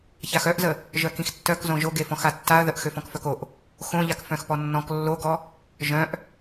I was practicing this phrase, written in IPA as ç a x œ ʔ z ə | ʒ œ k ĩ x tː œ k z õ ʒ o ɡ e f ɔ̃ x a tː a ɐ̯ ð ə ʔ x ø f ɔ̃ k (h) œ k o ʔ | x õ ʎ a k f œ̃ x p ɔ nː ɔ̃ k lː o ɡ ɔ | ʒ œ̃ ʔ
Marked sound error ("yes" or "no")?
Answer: yes